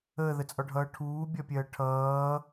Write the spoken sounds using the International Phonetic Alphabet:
əː ð ə t͡sʼ ɒ ɖʱ ʌː ʈʰ uː bʲ ɒ pʲ ɜː ʈʰ ʌː

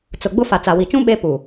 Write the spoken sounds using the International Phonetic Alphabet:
t͡s ʊ˨ ɡ͡b ʊ˦ f a˨ t͡s a˨ w i˨ t͡ʃ ũ˦ ɓ e˦ p u˨

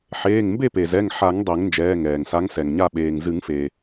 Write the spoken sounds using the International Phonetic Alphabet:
ħ eː˩˧˩ ŋ m b e˥˨ p e˩ z ɛ˩˧˩ ŋ ħ a˨˩˦ ŋ dˤ e˨˩˦ ŋ n d͡ʒ ɛː˩˧˩ ŋ ɛː˩ ŋ s a˨˦ ŋ s ɛ˩ ŋ ɲ a˥˨ ɓ eː˩ ŋ z ɨ˨˩˦ ŋ f eː˩

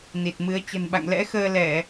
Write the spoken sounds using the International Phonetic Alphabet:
n i˨˩ t̚ m ɨ˨˦ ə̯ t͡ɕ ə̤˨˩ n ɓ a̰˧˨ ŋ l ɛ̰˧˥ x əː˧ l ɛ˧˩˨

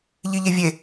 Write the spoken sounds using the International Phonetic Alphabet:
ʎ i ʎ e vʲ e

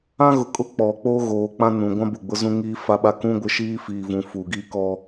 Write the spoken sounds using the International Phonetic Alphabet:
ã˦ ɣ ʊ˨ kʼ ʊ˦ k͡p ɔ˨ k͡p o˦ ɣ oː˨ k͡p ã˦ n ũ˨ ɡʷ ã˦ b ʊ˦˨ ɡ͡b ʊ˦ z ũ˦ ŋ iː˦ f a˦ ɓ a˦ k ũ˦ ɡʷ ɪ˦ ʃ iː˦ f iː˨ v ũ˨ f uː˨ ɡ iː˦ k ɔ˦

